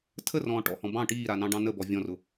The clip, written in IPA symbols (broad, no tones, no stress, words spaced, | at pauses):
tʰərɔ̃ː ʈɔ̰hɔ̃ bɑ̃ ʈiːɾanɑ̃ɖɑ̃ nəbɔ vʲɔ̃rʊ